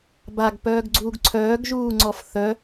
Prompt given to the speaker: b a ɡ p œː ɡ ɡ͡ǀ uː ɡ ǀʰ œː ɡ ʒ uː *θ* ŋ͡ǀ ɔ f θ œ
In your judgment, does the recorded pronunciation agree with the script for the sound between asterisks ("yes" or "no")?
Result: no